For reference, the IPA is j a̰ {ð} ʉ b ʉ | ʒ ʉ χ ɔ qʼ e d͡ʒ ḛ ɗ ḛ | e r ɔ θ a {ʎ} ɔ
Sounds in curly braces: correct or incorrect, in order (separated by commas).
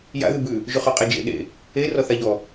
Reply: correct, correct